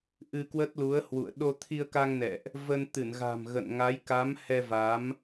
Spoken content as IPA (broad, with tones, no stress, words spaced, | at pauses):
ʔɨ˧kwə˦˥t̚lu˨˦ə̯hwṵ˧˨ə̯ ɗo˧t̪ʰi˧ə̯ka˧ŋnɛ̰˧˨ʔ | və˧n t̪ɨ˧˩nɣa̤˨˩m ɣə̰˧˨nŋa˨˦jka˨˦m hɛ˧va˨˦m